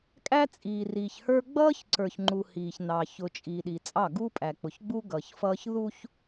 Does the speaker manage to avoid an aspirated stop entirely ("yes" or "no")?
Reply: yes